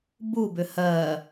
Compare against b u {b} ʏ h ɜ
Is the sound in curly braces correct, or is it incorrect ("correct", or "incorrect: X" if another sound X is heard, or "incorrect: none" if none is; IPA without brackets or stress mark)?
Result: correct